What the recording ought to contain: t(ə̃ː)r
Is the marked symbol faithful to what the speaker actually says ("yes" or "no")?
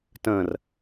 yes